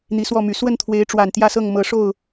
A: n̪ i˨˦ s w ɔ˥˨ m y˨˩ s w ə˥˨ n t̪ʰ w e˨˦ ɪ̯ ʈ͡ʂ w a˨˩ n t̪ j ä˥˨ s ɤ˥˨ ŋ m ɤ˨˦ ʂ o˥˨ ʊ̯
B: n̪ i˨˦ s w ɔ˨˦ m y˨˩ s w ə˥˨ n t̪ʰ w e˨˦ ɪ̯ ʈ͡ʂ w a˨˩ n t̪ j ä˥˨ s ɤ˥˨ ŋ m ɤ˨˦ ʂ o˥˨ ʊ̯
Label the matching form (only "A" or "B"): A